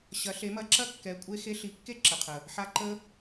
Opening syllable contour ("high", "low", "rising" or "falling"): rising